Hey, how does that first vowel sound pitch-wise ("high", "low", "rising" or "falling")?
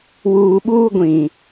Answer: low